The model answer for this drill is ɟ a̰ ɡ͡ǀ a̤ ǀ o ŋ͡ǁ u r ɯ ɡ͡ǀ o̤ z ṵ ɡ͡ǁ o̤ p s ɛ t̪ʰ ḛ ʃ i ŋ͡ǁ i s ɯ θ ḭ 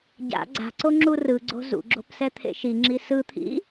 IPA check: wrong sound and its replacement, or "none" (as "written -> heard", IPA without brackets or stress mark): θ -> t̪ʰ